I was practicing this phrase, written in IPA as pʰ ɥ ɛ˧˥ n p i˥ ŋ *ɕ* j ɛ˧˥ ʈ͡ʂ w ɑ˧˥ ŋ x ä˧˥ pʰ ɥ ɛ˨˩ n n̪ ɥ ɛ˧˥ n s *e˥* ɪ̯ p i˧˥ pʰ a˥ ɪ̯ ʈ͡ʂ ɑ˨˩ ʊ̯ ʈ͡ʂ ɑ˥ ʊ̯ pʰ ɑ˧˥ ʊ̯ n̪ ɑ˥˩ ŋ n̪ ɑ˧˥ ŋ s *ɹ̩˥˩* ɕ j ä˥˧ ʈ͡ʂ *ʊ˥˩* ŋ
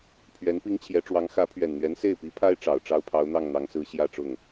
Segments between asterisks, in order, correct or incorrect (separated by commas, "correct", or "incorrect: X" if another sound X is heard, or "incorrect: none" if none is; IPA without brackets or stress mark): incorrect: t͡ɕʰ, incorrect: e˥˩, incorrect: ɹ̩˧˥, correct